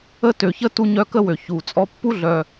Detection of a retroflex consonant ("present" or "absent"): absent